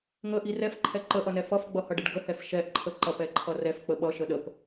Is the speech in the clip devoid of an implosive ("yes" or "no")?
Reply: no